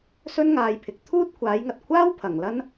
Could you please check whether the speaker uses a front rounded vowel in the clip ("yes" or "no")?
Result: no